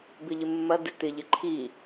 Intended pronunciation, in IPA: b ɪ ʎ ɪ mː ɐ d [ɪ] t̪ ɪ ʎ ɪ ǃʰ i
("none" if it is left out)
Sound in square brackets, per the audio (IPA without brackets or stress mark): ɪ